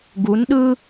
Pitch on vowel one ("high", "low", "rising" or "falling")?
rising